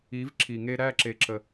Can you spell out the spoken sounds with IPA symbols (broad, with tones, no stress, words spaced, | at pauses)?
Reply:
i˨˦v ǁʰi˨ŋe˦ ɾæ˦˨ǁe˨ǁə˨